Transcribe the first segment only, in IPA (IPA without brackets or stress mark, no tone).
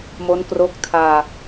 m